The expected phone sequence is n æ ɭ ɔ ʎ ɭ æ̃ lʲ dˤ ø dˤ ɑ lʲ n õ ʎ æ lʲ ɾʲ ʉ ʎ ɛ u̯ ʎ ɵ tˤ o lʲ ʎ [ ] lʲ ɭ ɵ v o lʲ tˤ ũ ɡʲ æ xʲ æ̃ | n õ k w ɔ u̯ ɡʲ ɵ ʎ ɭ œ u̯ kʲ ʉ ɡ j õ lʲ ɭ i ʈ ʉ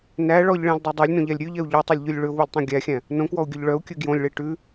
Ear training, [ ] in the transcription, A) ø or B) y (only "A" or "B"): B